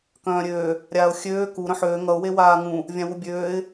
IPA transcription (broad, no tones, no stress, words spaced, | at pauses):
kœ̃ːɾʲøː | ɾʲaːʊ̯xʲøː ku ɾœ̃ħøː ŋʌʊ̯ wewaːŋũ | vʲãwubʲøːɪ̯